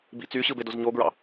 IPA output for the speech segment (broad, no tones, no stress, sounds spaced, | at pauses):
b ḭ t͡s y ɕ ɯ b e d o z ɲ o ɡ ɹ ɑ̰